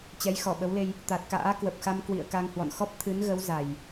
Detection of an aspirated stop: present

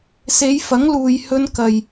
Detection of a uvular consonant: absent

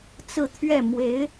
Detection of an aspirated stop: present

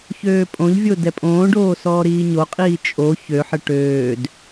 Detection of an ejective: present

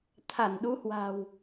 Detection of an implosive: present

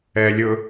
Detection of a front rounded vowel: absent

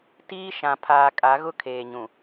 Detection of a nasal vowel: present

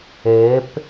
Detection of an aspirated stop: absent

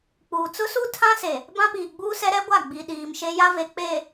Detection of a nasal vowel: present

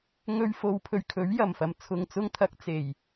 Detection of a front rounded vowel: absent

